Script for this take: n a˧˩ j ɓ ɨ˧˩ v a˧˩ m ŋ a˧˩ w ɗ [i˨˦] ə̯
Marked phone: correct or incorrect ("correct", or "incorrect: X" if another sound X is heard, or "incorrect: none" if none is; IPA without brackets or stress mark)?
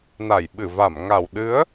incorrect: ɨ˨˦